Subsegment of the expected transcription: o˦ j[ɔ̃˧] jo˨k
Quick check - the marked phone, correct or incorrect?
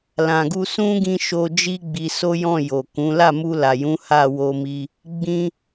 incorrect